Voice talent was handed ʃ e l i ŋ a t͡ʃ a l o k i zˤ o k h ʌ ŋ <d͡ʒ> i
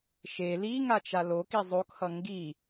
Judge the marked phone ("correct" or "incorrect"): incorrect